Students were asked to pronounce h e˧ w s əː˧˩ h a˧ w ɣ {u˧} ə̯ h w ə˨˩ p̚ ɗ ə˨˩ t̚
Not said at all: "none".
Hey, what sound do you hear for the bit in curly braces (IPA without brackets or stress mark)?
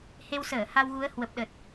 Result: u˨˦